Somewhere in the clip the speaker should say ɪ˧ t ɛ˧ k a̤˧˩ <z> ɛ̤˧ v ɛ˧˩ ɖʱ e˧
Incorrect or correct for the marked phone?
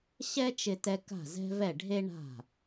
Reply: correct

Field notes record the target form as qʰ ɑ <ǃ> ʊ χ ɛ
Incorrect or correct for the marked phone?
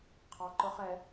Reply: correct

